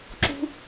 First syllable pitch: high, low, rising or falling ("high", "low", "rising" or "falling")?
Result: high